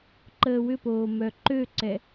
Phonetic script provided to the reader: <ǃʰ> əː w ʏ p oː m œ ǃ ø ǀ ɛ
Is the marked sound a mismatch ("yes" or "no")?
yes